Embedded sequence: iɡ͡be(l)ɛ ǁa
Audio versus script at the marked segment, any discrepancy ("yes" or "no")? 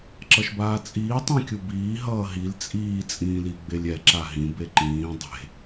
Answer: yes